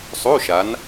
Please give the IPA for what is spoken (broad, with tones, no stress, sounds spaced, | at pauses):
sˤ o˧˥˧ ʃ a˨˦ n